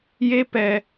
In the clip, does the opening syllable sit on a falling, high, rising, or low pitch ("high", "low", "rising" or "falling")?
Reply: high